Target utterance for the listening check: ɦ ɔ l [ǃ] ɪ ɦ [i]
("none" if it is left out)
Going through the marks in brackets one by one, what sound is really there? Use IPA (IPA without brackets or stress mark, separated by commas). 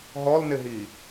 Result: n, i